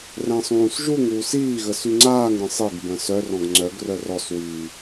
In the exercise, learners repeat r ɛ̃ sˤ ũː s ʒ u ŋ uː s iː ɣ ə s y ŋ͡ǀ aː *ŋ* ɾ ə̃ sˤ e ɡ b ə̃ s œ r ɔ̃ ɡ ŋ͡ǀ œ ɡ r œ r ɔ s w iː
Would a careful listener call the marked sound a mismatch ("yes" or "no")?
no